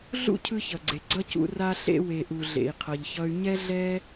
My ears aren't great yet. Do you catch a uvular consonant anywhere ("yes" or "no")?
yes